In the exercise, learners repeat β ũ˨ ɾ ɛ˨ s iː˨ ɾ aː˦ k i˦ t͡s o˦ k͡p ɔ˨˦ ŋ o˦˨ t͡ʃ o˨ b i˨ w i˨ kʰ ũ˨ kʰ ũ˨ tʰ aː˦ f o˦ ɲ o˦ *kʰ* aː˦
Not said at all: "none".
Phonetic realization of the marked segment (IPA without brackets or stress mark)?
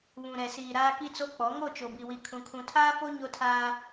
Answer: tʰ